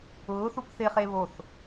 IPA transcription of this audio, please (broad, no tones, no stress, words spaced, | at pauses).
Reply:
ʊːθup θɪχe βoθ